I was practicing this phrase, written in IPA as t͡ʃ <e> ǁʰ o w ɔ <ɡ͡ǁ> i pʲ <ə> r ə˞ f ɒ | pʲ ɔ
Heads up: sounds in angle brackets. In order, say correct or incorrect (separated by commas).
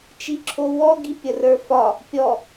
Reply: incorrect, incorrect, correct